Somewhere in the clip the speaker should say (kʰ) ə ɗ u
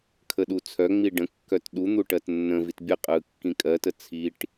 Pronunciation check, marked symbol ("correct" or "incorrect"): correct